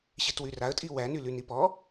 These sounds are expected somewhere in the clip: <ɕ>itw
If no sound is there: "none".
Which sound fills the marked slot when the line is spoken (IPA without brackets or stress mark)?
ɕ